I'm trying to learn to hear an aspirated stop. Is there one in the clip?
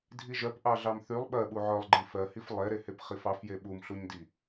no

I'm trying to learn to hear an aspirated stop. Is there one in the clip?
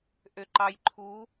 yes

